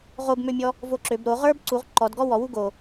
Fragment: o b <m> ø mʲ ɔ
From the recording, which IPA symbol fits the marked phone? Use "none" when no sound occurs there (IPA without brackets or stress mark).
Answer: m